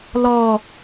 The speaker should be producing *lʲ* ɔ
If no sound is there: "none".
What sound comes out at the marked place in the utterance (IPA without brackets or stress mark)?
l